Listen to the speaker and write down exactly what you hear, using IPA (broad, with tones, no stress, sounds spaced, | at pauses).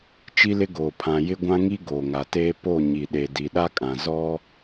t͡ʃ i˦ l ɪ˦ ɡ oː˨ pʰ ã˨ j ɪ˦ ɡʷ ã˦ ŋ i˦ ɡ oː˨ ŋ a˨ t eː˦ p o˦˨ ɲ i˨ ɗ e˨ d i˨ ɗ a˦ kʼ ã˨ z ɔ˦